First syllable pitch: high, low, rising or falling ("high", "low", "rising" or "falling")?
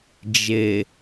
low